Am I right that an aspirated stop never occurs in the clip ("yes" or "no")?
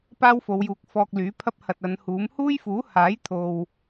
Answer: no